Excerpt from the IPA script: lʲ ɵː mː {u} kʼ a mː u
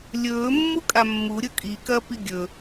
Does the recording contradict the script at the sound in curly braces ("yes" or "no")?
no